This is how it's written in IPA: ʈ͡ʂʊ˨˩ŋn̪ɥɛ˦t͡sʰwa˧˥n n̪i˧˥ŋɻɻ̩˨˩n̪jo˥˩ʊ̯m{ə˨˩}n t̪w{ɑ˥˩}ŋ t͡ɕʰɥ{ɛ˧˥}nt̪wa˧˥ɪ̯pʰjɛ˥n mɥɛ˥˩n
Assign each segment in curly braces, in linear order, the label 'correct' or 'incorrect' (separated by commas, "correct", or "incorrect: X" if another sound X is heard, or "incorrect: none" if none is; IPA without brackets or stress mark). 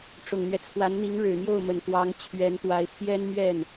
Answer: correct, incorrect: ɑ˧˥, correct